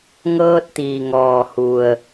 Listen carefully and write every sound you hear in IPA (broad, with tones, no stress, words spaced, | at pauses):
ŋɤː˧t̚t̪iː˩ŋɔː˩ hu˩ə̯